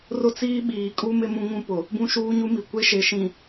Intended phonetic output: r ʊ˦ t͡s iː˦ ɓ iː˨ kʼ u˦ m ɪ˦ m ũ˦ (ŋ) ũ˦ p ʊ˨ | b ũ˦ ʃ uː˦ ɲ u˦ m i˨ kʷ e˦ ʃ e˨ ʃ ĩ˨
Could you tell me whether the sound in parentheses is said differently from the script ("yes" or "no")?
no